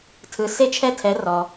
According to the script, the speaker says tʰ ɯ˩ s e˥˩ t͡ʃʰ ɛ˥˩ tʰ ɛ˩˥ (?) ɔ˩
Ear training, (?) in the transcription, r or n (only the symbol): r